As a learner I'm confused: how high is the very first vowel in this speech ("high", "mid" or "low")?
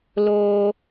mid